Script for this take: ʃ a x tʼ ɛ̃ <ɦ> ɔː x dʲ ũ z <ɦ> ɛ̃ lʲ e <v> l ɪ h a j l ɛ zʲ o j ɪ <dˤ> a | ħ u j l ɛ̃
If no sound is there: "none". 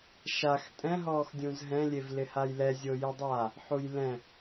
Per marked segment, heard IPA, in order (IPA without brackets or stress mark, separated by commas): ɦ, ɦ, v, dˤ